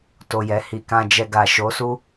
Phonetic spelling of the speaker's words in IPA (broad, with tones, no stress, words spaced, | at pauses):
to˨jɛ˨ hi˨kã˧d͡ʒɛ˧ɡa˨ ʃo˨˦su˦